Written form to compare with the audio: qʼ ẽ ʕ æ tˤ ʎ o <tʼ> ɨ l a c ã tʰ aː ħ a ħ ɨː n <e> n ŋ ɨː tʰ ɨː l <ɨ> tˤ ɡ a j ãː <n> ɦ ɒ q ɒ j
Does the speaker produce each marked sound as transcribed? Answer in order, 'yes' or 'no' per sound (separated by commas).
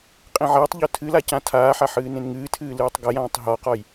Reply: no, no, no, no